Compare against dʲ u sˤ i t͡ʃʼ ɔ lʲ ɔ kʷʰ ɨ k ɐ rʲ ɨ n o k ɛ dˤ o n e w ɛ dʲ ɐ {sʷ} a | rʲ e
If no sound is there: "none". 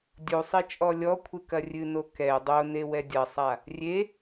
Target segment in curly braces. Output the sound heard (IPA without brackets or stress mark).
sˤ